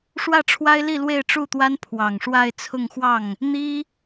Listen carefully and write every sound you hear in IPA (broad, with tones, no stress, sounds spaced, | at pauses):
ʂ w ä˥˩ ʈ͡ʂʰ w a˥ ɪ̯ l i˥˧ l w e˥˧ ɪ̯ ʈ͡ʂ u˥˩ t̪ w a˥ n pʰ w ɑ˨˩ ŋ ʂ w a˥˧ ɪ̯ t͡sʰ ʊ˥˧ ŋ x w ɑ˥˩ ŋ | n̪ i˥